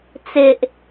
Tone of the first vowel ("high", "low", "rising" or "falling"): low